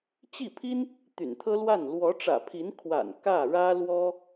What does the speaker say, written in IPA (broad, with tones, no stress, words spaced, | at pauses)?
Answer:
t͡ɕi˥˩pʰi˥n | t̪y̰˨˩nt̪ʰɤ˥lwa˥˩n lwɔ˧˥ʈ͡ʂä̰˨˩pʰi˧˥n kʰwa̰˨˩n kä˥˩ ɻä˥lwɔ˥